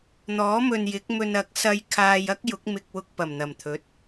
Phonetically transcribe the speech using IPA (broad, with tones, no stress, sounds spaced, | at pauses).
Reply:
n̪ ɔː˨˥ m ɵ˨ n j ɪ˨˥ k̚ m ɵ˧ n ɐ˨˥ k̚ s ɐ˧ j kʰ aː˧ j ɐ˥ k̚ j ʊ˨˥ k̚ m ɪ˨ k̚ w ʊ˧ k̚ p ɐ˨˩ m n̪ ɐ˨˩ m t̪ʰ ɵ˨˥ t̚